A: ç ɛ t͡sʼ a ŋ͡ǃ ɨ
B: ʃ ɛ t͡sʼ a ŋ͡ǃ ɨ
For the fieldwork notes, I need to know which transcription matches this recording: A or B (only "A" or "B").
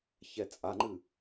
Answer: A